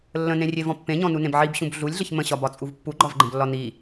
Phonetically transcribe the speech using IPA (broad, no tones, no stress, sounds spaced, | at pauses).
lː ə̃ n ẽ rʲ e v ɔ̃ pː ẽ ɲ ɔ̃ n u n ẽ b ʕ i b ɕ ũ b ɮ u lʲ ɮ ə ç m ə̃ ɕ ɒ b ɒ t͡sʼ u v pː u ɡ͡ǃ ɒ v ɡ͡ǃ ə̃ b lː ɒ n i